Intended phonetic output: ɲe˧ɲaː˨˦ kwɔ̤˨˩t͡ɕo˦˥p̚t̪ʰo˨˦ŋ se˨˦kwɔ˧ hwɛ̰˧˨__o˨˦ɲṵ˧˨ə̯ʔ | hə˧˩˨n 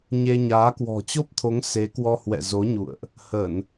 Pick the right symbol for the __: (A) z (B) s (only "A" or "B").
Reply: A